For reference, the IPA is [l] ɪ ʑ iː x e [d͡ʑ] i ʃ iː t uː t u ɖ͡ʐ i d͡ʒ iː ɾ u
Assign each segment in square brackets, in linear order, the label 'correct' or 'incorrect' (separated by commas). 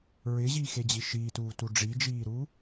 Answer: incorrect, correct